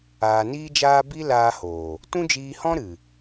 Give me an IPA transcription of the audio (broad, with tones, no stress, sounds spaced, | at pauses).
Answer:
aː˧ n iː˦ d͡ʒ aː˦ b i˦ l aː˧ h oː˨ | t ũ˦ d͡ʒ iː˧ h ɔ̃˦ ɾ ɨ˨